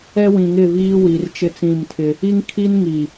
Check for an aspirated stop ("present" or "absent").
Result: present